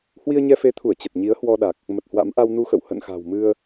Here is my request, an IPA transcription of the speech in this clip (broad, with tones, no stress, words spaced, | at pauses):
hwi˧ə̯ɲɛ˧fe˨˦t̪ʰu˧˩ə̯ t͡ɕə˨˩t̚ɲi˨˦ə̯hwɔ˧ɗa˨˩k̚ | mə˨˩t̚hwa̰˧˥m ʔa˧wnu˧xə̰˧˨w hə̰˧˨nxa̤˨˩w mɨ˧ə̯